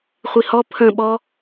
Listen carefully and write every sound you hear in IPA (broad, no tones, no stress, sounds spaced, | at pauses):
χʷ i h ɔ pʰ ə̃ ɓ ɔ